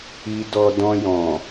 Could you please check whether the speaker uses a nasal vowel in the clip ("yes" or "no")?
yes